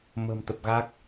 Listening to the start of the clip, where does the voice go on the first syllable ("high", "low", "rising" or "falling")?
low